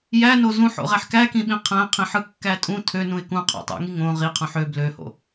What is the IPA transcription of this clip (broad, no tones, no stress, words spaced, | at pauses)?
jæno zũħo̰ʁæħ kækĩɓĩ qʰæ̃qʰĩħɯkːæ tʼũ tʰønũɪ̯ kũqʰo̰tˤo̰ŋi ŋõ ʁiqʰũħ ø bløho̰